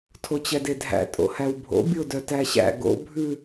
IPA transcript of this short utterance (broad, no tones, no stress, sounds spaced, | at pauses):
tʰ o t͡ɕ ɛ d e dʱ æ̰ tʼ o̰ h æ w bʱ o̰ bʲ o d œ t æ ɕ æ̰ ɡ o̰ bʱ ʉ